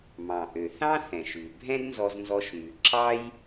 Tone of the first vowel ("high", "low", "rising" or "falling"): low